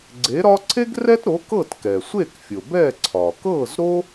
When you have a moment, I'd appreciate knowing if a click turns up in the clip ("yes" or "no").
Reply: yes